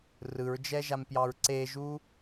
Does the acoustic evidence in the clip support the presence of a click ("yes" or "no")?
yes